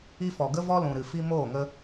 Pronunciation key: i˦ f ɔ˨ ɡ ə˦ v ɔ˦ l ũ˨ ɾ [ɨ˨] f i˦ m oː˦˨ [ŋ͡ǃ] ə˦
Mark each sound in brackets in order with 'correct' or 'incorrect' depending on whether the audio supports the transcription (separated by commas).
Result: correct, incorrect